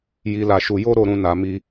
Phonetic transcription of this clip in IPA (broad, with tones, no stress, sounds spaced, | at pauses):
j i˧ l a˧ ʃ u˧ j o˦ ɾ o˦˨ ɾ ũ˧ n a˨ m i˧